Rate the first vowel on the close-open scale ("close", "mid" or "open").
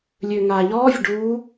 mid